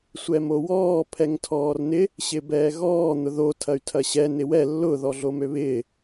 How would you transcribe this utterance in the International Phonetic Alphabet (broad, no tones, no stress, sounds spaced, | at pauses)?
sʷ ɛ m o w ɔː pʰ ɛ ŋ tʰ ɔː r n ɪ | ɕ ɪ b ɛː ɣ ɔː n̪ ʊ ð o tʰ ɐ y̯ tʰ ɐ ɕ ɛ n ɪ w ɛ lː ʊ ð ɔ ɮ o m ø β ɪː